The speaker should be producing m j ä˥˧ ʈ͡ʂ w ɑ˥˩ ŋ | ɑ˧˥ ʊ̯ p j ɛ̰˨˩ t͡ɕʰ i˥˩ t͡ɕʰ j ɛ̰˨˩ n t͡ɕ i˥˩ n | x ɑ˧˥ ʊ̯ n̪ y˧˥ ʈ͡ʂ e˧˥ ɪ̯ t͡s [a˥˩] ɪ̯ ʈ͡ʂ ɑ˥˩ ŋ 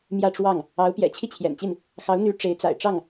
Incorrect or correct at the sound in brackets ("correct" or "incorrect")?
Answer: incorrect